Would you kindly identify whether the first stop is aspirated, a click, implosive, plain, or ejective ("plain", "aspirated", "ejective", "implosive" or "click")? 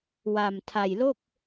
aspirated